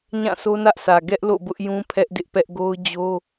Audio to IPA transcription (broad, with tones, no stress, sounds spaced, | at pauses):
ɲ ã˦˨ sʰ o˦ n ä˦ ʔ sʰ ä˨ ɡ ɛ˦ ʔ l o̰˦˨ b ʊ˦ ʔ j ũ˦ pʰ ɛ˦ ʔ d ɪ˦ ʔ p ɛ˦ ʔ ɡ o˦ ʊ̯ d͡ʑ o˦